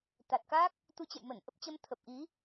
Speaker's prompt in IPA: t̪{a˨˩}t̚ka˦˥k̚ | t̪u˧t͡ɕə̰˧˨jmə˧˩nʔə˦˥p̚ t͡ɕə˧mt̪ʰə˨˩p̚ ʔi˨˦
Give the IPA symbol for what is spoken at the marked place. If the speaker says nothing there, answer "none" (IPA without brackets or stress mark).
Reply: a˨˩